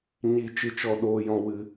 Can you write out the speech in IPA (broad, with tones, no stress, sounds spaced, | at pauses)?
ɲ iː˦ t͡ʃ ɨ˦ t͡ʃ ɔ˦ ɗ oː˦ j ɔ̃˦ w ɨ˦